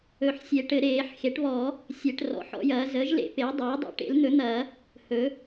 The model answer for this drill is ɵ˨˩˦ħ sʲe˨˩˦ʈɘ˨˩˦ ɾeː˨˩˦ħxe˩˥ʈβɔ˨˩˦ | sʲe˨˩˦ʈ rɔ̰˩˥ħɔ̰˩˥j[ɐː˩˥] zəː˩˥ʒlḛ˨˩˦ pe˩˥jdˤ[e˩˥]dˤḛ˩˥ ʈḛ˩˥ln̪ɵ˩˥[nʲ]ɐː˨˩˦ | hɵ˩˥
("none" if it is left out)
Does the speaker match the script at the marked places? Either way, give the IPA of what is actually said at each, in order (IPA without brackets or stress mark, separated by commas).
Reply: ɐː˩˥, eː˩˥, n̪